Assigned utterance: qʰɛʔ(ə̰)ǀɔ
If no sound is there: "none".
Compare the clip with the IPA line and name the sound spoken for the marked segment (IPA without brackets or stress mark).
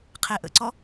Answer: ə̰